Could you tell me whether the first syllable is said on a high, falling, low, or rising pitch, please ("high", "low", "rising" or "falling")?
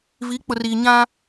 rising